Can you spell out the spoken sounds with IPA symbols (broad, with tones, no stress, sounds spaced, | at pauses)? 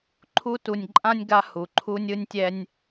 ǃʰ u˦ t u˨ nʲ ǃʼ ã˥ nʲ ɡ a˦ h u˩ ǃʰ u˦ nʲ ɯ˦ nʲ tʲ ɛ˦ nʲ